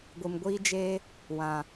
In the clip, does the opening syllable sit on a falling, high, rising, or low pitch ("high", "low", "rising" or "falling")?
low